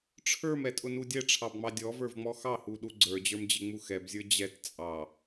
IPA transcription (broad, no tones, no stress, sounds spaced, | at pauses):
ʈ͡ʂʰ ə˞ m ɛ tʼ ʊ n u dʲ ɛ ʈ͡ʂʰ ɑ b ŋ͡m ɑ dʲ ɔ v ə˞ v ŋ͡m ɔ x ɑ h u ɗ u ɡ͡ǀ ə˞ d͡ʑ ə˞ m d͡ʑ ɪ ŋ͡m u x ɛ b zʲ ə˞ d͡ʑ ɛ t t͡sʼ ɑ